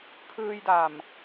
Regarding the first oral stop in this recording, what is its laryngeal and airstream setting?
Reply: aspirated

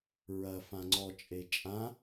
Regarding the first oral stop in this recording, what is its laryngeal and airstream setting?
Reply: click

